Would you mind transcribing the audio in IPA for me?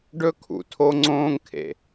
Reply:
ɖ ɵ˥ kʰ ṵ˩ tʰ o˥ ŋ͡ǀ õː˥ ŋ kʰ ḛ˩

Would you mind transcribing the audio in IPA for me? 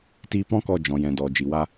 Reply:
t iː˧ p ɔ̃˦ k ɔ˧ d͡ʒ ɔ̃˨ j ɛ̃˨ d ɔ˨ d͡ʒ i˨ w a˦

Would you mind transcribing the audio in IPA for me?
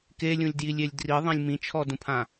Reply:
k e lʲ ũ lʲ d j i lʲ e lʲ d r i ðˤ ĩ lʲ m ĩ t͡ʃʰ ɔ d ũ pʰ ã

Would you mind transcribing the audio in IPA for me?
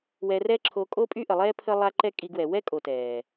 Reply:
w ɛ˧ r ɛ˦ ǁʰ o˧ kʼ o˦ pʼ y˦ ʔ ə˨ lˠ ɛː˦ pʰ ə˦ lˠ a˦ ǃ ɛ˦ kʼ i˧ ɡ w ɛ˨ w ɛ˦ kʼ o˨ t ɛː˨

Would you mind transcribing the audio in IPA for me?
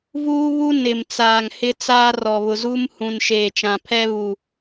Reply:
v uː˦ β u˦ n ɪ˨ m t͡s aː˨ ŋ h ɪ˦ t͡s aː˦ r ɔ˨ β ʊ˨ z uː˦ m h ũ˨ n ʃ eː˨ t͡ʃ ã˨ pʰ ɛ˦ β u˨

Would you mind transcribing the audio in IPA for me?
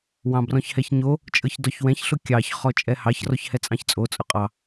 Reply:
w ɑ̃ b r ɔ̃ ç h ɛ ç ɲ o | t͡ʃʼ ɤ ç d ɔ ç w ɛ̃ ç ɬ ʊ kʲ ɑ ç χ ɔ t͡ʃʼ ɛ h ɑ ç r ɔ ç h ɛ t͡sʼ ɑ̃ ç t͡sʼ o t͡sʼ ʊ qʼ ɑ

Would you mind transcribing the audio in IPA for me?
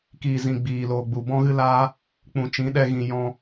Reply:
k iː˨ z ĩ˨ ɡ͡b iː˨ l oː˨ ɡ͡b u˨ b ɔ̃˦ ɣ ɨ˦ l aː˦ | k͡p ũ˨ t͡ʃ ĩ˨˦ ɗ ɛ˧ ɣ ĩ˨ j ɔ̃˧

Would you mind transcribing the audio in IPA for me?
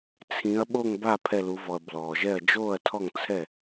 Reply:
t͡sʰ ĩ˩˧ ɐ̯ ɓ o˧˩ ŋ b a˥˩ pʰ ɛ˧˩ l u˩˧ v ɔ˩ ɐ̯ b l ɔː˩ ʒ ɛ˥˩ ɐ̯ d͡ʒ oː˥˩ ɐ̯ tʰ ɔ˥˩ ŋ t͡sʰ ɛ˥˩

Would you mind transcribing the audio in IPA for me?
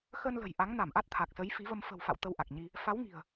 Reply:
x ə˧ n l ə̤˨˩ j ʔ a˨˦ ŋ n a˧˩ m ʔ a˦˥ t̚ t̪ʰ a˨˩ k̚ s ə˨˦ j f i˨˦ v ə˧ m f ə̤˨˩ w f a̰˧˨ w t̪ ə˧ w ʔ a˨˩ k̚ ɲ i˧ | f a˨˦ w ŋ i̤˨˩ ə̯

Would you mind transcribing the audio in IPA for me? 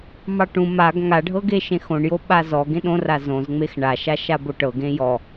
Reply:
m ɑ ʈ ũ m a ɡ ŋ a ɖʱ ɤ ɡ e ʃ ẽ x õ ɳ j o ɓ a z ɔ ɡ ẽ ɗ õ r a z õ z ŋ͡m e x ɳ a ʃ a ʃ a b o ʈ ɤ ɡ ẽ j ɔ

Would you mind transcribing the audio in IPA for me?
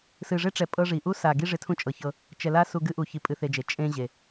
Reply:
s ɨ˨ ʐ e˦ ʈ͡ʂ ɛ˨ pʼ ɤ˦ ʐ i˨ ʔ u˦ s a˨ ɡ i˦ ʐ ɪ˦ tʰ ũ˦ t͡ʃʼ ɤ˨ ç ɤ˦ | t͡ʃ ɛ˨ l a˦ s u˦ ɡ ɨ˦ ʔ u˨ ç i˦ pʼ ɨ˦ θ e˦ d͡ʒ e˨ t͡ʃʼ ẽ˦ ʑ e˨

